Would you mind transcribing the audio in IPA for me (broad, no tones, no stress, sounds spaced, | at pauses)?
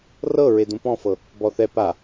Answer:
r ɤ ɹ e d ũ p ɔ̃ f ɤ | b ɔ θ ɛ p a